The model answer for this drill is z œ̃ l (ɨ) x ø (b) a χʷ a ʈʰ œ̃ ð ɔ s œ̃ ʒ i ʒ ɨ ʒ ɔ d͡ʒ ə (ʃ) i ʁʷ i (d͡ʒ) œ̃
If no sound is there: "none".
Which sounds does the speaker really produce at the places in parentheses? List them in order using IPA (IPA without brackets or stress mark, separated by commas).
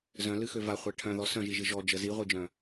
ɨ, v, z, d͡ʒ